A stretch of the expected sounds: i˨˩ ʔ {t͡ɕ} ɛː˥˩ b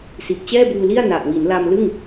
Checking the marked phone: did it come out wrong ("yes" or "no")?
no